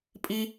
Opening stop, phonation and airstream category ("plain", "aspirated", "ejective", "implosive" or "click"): ejective